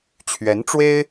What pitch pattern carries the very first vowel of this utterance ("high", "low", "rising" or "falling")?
rising